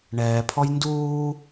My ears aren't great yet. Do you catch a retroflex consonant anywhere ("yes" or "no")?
yes